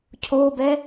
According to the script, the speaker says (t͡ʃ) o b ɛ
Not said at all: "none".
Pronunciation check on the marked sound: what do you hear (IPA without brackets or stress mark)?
cʰ